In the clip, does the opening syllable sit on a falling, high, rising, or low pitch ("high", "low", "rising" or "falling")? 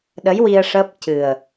rising